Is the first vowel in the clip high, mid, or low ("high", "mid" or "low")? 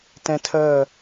mid